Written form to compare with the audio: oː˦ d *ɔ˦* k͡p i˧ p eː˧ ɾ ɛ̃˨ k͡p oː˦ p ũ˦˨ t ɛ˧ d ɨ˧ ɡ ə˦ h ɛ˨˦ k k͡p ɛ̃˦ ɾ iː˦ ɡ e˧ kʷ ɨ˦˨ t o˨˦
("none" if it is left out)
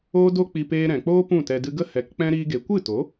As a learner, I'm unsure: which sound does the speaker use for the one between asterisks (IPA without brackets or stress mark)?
o˦